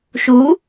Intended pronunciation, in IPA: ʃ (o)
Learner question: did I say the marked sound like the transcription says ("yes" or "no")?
no